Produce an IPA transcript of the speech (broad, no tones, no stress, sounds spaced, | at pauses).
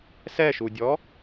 s ɛ ʃ u dʲ ɔ